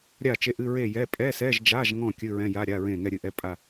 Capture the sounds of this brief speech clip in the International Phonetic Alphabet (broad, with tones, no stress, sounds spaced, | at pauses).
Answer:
ɾʲ a˥˨ t͡ʃ e˧˥˧ ʔ ɨ˧˥˧ ɹ e˥˨ j ɛ˧˥˧ pʼ ɛ˧˥˧ s ɛ˧˥˧ ʒ d͡ʒ a˧˥˧ ʒ ŋ ɔ̃˥˨ kʲ ɨ˧˥˧ ɹ ɛ̃˧˥˧ j a˧˥˧ ɾʲ a˧˥˧ ɹ ẽ˥˨ ŋ ɛ˥˨ ɾʲ ɨ˥˨ ʔ ɛ˧˥˧ pʼ a˥˨